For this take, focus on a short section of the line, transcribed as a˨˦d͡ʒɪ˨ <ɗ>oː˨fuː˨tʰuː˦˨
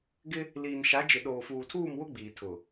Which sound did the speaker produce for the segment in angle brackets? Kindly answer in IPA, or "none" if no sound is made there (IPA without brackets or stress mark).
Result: ɗ